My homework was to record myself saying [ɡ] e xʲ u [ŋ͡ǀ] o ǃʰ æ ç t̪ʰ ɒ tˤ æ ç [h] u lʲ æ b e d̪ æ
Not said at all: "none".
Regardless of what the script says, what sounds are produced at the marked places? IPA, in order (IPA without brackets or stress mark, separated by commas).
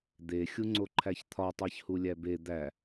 d̪, ŋ͡ǀ, h